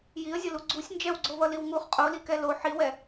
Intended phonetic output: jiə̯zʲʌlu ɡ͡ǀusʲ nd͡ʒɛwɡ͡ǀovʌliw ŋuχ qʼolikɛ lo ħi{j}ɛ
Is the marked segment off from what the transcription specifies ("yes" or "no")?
yes